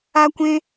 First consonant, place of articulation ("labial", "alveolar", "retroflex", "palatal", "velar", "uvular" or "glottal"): velar